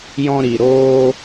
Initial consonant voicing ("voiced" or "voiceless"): voiced